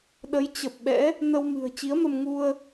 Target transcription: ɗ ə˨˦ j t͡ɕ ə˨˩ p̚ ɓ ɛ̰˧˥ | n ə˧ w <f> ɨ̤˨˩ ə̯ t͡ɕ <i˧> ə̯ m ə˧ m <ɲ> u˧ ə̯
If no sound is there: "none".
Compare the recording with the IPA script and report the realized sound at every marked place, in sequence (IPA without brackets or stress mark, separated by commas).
m, i˨˦, ŋ